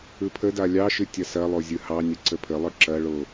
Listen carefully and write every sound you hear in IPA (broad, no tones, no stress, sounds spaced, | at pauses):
ɯ pʰ ə d a lʲ ɑ ʃ ɨ tʲ ɐ s ɐ lˠ o zʲ ɯ h ɑ nʲ ə ǀ ə pʰ ə lˠ ɯ ǁ ɐ ɭ o